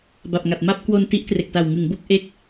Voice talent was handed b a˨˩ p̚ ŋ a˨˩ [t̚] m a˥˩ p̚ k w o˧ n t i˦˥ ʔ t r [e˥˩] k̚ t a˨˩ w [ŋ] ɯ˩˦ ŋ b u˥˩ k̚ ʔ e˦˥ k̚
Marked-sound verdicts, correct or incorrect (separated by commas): correct, incorrect, correct